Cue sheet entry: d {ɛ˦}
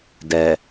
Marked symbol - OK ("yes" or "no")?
no